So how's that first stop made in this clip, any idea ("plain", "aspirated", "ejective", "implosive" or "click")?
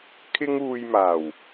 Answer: aspirated